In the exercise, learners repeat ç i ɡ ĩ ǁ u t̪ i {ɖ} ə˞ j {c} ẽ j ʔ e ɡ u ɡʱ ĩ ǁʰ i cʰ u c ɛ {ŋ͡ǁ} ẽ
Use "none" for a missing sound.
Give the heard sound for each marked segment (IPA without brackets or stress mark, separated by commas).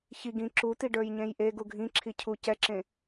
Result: ɖ, ɲ, ǁ